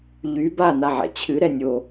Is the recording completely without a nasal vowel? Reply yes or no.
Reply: yes